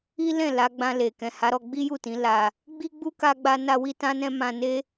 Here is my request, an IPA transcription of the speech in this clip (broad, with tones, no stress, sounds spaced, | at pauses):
i˦ l ɛ̃˦˨ l a˨˦ ɡ͡b ã˧ l e˨ k ɛ̃˨ h a˨˦ ɾ ɔ˧ ɡ͡b i˦ j u˦˨ t ĩ˨˦ l a˧ | ɡ͡b i˦ ɡ͡b u˦ k a˦ ɡ͡b a˦ n a˦ w i˦ t ã˦ n ɛ̃˦ m ã˧ n e˦